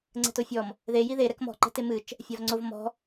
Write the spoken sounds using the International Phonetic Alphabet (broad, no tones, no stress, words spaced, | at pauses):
ŋ͡ǀɛ̤tofʲɔm | ðe jiðe ɾɛkmɔ̤ ǃɛ̤temɨt͡ʃ | fʲavŋ͡ǀov mɔ̤